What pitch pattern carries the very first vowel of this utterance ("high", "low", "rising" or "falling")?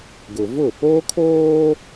low